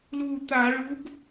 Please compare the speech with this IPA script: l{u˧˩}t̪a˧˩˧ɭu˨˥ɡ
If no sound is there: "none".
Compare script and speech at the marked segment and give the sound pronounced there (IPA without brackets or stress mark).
u˧˩